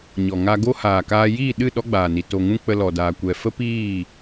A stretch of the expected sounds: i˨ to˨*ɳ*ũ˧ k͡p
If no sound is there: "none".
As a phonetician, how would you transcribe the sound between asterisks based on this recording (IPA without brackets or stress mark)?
ŋ